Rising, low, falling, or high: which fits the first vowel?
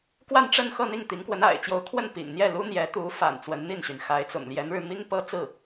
falling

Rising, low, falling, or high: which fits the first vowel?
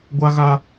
high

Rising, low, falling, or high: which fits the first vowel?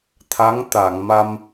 rising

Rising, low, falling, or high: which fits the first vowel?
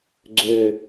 low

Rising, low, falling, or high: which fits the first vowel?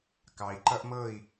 low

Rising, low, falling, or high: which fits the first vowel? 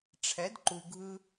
rising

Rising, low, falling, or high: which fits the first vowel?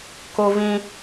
high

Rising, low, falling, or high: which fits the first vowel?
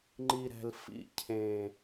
low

